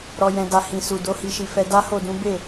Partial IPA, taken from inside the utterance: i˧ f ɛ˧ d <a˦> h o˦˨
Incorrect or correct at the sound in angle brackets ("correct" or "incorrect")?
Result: correct